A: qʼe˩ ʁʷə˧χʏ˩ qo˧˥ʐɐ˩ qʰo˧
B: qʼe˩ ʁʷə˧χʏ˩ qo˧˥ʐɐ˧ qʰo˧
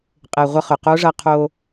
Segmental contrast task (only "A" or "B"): B